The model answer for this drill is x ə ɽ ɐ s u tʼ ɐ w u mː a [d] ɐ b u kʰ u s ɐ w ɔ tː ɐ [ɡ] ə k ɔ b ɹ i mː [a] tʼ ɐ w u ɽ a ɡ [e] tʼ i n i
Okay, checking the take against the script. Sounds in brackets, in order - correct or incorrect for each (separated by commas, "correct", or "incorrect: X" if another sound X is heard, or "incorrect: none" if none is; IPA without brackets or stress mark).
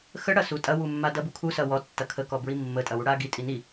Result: correct, incorrect: kʰ, incorrect: ə, incorrect: i